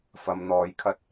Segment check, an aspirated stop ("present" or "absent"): present